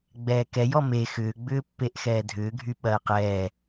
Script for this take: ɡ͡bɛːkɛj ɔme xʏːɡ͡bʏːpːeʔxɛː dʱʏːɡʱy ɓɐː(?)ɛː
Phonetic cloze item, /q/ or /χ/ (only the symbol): q